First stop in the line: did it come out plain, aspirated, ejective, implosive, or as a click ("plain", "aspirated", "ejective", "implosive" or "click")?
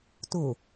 plain